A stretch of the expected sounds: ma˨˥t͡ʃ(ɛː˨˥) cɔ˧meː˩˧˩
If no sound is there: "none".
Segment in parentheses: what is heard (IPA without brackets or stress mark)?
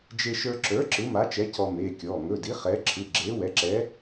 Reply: ɛ˨˥